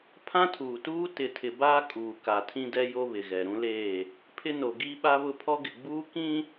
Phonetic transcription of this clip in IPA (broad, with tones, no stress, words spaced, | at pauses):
pʰã˦tʰuː˨tuː˦ tɪ˨tʰɪ˨baː˦ kʼuː˨ ka˨tʰĩ˦dɛ˦ jo˦βɪ˨ɣɛ˨ ɾũ˦leː˦˨ | pʰɪ˦no˨ɡi˦ɓa˦ βʊ˦pʰɔ˦ɡɪ˨ ɡ͡buː˦ kĩ˦